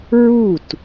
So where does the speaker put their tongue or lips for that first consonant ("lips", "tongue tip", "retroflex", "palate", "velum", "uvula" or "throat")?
tongue tip